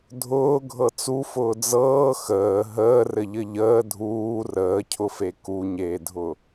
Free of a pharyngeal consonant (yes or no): yes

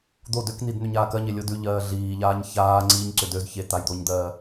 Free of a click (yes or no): no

